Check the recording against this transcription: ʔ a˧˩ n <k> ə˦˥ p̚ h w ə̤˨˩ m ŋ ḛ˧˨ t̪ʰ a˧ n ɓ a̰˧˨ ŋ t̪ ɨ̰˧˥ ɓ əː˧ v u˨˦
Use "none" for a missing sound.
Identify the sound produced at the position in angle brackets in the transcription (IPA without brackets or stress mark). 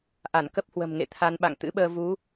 k